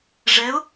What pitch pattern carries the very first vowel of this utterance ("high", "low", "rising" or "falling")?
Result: rising